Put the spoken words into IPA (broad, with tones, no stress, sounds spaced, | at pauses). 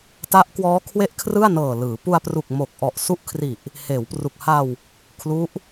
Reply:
t a˦˥ ʔ k w ɔː˦˥ kʰ w e˥˩ ʔ kʰ r ɯ˥˩ a̯ n ɤː˨˩ l ɯː˩˦ p u˧ a̯ p r u˨˩ k̚ m o˨˩ k̚ ʔ ɔ˨˩ ʔ s u˦˥ ʔ kʰ r i˨˩ ʔ | h eː˩˦ w p r u˨˩ k̚ h a˧ w | kʰ l u˦˥ ʔ